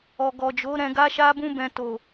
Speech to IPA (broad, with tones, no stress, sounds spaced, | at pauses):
ɔ˨ ɡ ɔ˨ d͡ʒ o˨˦ ɾ ɛ̃˧ ɡ a˦ ʃ a˦ b ũ˦ b ɛ̃˧ t o˨